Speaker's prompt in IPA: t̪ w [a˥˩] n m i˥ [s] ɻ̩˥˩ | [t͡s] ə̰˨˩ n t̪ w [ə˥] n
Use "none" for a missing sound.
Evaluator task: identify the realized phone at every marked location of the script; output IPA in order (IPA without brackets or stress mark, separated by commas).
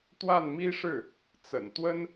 a˥˩, ʂ, t͡s, ə˥